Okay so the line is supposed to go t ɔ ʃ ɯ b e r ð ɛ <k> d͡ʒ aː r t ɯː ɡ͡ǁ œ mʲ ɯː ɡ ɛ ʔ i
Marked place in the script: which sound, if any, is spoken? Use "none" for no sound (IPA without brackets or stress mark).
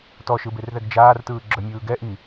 ɡ